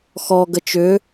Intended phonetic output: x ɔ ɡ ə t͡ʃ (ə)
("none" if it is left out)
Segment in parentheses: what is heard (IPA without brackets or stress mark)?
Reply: ʏ